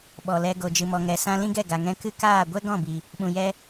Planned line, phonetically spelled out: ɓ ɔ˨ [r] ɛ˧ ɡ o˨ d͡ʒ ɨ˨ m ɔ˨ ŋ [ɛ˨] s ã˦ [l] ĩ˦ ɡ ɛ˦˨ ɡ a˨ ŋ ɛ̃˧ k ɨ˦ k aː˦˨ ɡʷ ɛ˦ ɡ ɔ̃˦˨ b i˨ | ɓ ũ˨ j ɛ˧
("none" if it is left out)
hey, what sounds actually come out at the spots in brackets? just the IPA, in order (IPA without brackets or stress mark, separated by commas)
l, ɛ˨, l